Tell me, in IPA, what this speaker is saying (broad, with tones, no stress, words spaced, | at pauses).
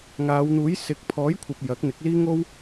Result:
ŋaː˨˧wn̪uː˨˥j sɪ˨˥k̚ pʰɔː˨˥jkʷʰɐ˨p̚ jɐ˨˥k̚n̪ɪ˨˥k̚liː˥ ŋo˥w